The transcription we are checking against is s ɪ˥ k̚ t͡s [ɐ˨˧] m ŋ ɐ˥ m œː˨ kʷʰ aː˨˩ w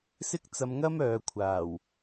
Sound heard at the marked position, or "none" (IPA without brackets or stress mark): ɐ˧